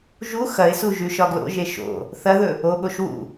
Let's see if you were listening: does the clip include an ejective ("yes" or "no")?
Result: no